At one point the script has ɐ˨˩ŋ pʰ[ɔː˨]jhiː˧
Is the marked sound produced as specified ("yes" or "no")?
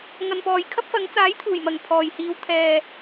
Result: yes